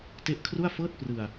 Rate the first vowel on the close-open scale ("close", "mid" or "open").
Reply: mid